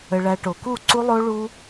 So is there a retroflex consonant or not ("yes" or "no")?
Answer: yes